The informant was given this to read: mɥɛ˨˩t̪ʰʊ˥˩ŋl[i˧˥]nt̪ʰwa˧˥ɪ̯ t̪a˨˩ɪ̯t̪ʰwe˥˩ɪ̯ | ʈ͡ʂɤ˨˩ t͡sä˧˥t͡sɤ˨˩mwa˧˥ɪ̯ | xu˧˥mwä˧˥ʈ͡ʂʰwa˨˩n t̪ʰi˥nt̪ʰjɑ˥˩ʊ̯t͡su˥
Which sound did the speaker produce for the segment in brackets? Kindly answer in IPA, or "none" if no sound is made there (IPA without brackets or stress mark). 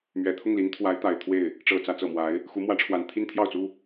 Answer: i˧˥